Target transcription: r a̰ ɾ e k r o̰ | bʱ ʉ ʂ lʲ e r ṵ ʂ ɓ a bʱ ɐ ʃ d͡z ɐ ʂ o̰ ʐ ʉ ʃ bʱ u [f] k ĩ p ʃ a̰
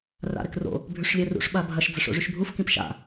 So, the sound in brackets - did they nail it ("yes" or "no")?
yes